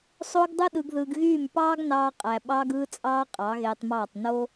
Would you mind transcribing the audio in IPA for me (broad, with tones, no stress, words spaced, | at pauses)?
sˤo˦ɡ dˤɯ˦ɗɯ˧ɡðɯː˧ɡɣyː˦˨m pɑː˦ɡnɑː˧ qʼæ˨ ɓɑː˦ɡɯː˦t͡sʼɑː˦ qʼɑ˨˦ɣeː˧tˤmɑː˦˨tˤ no˦